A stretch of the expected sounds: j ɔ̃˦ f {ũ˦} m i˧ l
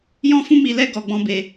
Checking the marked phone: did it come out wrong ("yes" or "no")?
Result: no